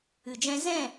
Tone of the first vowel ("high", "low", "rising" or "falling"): low